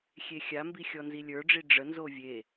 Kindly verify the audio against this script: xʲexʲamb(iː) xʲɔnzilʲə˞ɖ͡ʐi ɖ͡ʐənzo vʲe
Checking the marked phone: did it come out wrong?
yes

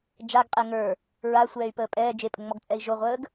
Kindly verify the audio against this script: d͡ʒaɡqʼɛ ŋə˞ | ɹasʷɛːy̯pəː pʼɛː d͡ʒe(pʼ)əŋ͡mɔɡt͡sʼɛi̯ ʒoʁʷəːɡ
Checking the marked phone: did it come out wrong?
no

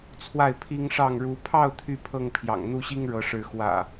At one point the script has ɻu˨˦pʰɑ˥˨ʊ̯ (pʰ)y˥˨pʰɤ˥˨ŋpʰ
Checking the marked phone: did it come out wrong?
yes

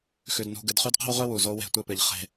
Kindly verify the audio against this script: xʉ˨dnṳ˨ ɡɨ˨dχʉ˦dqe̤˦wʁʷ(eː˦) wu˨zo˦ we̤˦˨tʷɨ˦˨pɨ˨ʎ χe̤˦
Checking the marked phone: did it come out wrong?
yes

